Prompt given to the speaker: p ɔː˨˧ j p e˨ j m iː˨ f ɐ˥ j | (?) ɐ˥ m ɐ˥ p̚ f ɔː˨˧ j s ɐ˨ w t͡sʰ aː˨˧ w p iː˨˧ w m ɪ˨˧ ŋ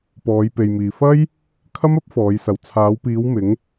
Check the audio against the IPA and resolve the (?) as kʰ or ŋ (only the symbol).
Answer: kʰ